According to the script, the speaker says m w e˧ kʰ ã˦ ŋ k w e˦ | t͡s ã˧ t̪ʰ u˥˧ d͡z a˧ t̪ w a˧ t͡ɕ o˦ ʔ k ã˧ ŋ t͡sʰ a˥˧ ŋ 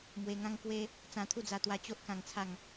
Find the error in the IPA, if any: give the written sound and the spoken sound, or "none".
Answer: kʰ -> ŋ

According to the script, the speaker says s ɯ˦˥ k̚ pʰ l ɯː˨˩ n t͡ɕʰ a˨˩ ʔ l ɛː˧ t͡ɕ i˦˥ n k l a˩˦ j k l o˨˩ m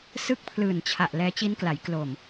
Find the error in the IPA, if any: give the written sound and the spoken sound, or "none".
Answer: none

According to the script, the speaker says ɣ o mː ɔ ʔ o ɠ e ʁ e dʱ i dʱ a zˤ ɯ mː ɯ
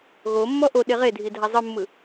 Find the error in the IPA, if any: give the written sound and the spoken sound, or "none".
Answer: ɠ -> ɗ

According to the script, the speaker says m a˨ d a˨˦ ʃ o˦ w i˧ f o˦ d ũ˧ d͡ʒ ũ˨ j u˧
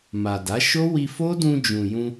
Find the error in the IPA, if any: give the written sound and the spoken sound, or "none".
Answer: u˧ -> ũ˧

